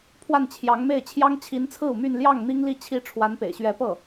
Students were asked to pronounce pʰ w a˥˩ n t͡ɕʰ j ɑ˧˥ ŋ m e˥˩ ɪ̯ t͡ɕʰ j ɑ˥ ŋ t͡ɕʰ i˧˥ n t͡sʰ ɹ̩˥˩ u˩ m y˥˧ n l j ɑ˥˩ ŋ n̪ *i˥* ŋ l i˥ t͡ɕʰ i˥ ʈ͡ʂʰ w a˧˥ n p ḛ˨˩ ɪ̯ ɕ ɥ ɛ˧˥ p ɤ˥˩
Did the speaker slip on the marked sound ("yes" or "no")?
no